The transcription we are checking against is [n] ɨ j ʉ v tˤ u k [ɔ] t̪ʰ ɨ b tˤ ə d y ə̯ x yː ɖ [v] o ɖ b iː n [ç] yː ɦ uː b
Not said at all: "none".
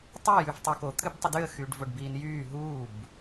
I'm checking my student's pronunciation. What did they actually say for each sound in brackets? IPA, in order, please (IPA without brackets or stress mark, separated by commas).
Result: tˤ, o, v, j